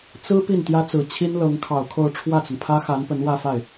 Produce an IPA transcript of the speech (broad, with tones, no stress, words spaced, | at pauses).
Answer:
t͡sɹ̩˥ pi˥˩nt̪jä˥t͡sɹ̩˨˩ t͡ɕʰi˥nlɤ˧˥ŋkʰɑ˨˩ʊ̯kʰo˥˧ʊ̯ ʈ͡ʂʰwä˥˩t͡sə˩npʰä˥xa˧˥n pə˧˥nwä˥˧fa˥˩ɪ̯